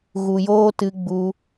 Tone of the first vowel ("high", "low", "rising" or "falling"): low